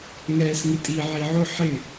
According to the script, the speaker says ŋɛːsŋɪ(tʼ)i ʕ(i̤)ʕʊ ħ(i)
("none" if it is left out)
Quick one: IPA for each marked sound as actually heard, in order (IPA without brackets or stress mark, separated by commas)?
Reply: tʼ, i, ɪ